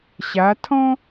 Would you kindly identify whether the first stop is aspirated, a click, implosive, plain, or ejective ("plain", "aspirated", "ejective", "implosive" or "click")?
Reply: aspirated